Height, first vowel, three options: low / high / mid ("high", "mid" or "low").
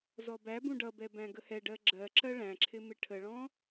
mid